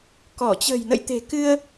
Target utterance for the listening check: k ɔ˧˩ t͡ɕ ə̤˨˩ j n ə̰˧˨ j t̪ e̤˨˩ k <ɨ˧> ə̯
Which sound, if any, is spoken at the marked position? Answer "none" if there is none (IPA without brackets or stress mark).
ɨ˧